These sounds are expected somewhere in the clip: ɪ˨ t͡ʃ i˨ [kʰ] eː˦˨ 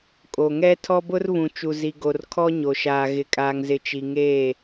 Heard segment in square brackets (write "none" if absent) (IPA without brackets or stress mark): ŋ